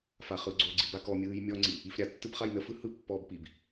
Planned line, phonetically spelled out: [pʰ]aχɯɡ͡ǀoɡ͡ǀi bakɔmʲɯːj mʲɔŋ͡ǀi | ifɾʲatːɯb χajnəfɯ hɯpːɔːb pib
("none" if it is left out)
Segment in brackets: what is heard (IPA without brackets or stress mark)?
f